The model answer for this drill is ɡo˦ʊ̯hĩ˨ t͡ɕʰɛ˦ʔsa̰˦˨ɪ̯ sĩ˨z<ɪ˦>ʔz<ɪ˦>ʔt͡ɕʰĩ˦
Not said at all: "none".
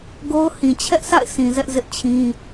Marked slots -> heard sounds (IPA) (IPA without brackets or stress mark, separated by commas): ɛ˦, ɪ˦